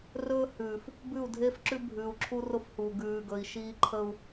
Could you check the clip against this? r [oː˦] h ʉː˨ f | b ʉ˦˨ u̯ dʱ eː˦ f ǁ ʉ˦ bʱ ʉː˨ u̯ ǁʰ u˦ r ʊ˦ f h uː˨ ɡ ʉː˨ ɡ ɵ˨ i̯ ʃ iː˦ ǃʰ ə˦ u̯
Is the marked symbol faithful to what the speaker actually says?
no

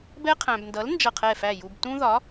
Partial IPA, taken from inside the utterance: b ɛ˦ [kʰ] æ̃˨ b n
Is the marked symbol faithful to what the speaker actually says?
no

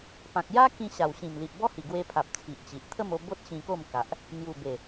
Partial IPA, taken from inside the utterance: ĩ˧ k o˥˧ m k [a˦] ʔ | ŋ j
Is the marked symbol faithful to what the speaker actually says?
no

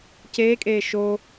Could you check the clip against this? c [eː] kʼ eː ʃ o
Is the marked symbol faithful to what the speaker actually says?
yes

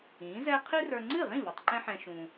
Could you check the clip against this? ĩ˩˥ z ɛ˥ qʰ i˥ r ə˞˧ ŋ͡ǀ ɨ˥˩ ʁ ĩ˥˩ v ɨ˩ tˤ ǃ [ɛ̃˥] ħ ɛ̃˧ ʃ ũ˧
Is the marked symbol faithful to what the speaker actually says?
yes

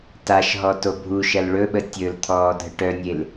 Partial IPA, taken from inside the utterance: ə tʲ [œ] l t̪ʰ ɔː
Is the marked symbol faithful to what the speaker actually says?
no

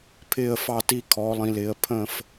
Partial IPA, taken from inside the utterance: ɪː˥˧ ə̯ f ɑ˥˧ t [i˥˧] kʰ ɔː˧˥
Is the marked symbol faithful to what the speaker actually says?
yes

